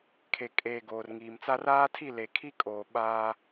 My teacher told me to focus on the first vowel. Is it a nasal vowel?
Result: no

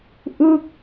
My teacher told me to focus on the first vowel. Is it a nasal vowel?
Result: no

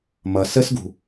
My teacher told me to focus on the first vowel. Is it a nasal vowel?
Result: no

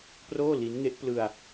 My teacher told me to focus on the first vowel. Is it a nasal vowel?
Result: no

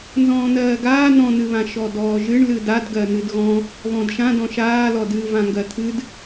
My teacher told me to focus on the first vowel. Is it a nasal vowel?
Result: yes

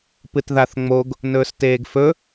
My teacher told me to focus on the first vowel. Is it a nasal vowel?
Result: no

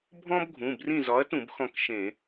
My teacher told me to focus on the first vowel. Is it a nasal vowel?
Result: yes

